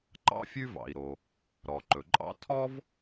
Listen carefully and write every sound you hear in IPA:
ǃ ɑ̰˥ fʲ ʉ˥ v ɑ̰˩ i̯ ɾ o˩ | ɾ ɔ˩ ǃ ɵ˩ ǃʼ ɑ̰˥ tʰ ɔ˥ v

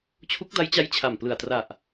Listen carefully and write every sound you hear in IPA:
t͡ɕʰ u˦˥ k̚ d a˦˥ j t͡ɕ a˦˥ j t͡ɕʰ a˨˩ m p l ɯ˨˩ a̯ t r a˨˩ ʔ

